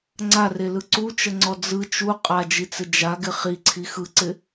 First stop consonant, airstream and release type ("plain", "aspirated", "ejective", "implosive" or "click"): click